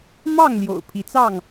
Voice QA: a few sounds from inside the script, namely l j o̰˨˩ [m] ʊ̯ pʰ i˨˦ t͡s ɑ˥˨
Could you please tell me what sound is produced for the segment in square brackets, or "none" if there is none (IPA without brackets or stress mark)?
none